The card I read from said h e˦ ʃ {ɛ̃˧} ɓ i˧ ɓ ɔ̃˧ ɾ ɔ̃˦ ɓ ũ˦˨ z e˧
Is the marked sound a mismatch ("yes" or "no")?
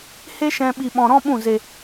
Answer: no